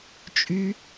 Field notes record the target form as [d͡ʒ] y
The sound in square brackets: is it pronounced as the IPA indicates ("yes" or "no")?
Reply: no